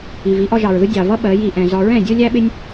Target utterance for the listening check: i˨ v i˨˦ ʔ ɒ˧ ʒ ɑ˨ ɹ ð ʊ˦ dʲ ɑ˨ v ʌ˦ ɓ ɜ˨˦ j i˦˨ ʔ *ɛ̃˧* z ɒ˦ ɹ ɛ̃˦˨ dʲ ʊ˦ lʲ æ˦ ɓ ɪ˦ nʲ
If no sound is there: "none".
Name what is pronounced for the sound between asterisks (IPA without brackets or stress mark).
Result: ɛ̃˧